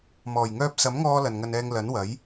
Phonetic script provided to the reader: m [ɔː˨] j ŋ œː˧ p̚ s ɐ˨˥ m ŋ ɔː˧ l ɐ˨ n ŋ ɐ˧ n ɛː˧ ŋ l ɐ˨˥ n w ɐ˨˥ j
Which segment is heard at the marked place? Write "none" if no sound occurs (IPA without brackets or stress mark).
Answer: ɔː˨˩